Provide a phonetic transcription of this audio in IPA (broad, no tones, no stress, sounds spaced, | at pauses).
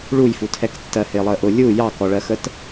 ɭ u j f u tʰ ɛ k tː ɜ h ɪː lˠ əː ʔ ʊ lʲ u j ɑ k ɔ ɭ ɜ x ə t